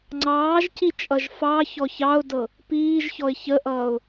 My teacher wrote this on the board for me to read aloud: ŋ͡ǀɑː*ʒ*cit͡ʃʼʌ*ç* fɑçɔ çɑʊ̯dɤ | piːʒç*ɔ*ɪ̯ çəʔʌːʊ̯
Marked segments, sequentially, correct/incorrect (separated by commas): correct, incorrect, correct